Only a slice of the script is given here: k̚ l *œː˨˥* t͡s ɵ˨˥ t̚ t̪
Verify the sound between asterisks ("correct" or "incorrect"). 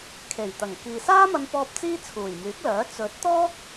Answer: correct